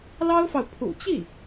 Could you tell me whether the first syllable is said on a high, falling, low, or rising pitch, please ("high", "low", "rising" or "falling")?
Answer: high